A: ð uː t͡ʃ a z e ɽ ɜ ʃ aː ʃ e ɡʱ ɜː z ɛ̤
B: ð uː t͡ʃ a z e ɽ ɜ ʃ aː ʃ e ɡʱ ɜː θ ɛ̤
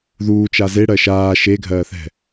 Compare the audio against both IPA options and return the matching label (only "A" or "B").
B